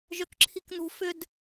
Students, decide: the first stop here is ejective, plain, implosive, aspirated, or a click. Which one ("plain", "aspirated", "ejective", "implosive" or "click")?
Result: plain